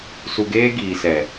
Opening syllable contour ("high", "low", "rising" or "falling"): low